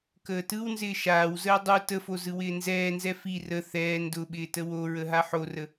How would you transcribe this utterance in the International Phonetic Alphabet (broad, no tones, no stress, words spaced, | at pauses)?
kəːtɯwnzɪː ʃaːwzəː dˤu təfo zɯwɪːnzɛːnzɛ fi rə θɛː ndʊɓɪː təwoɹə ɦaħorə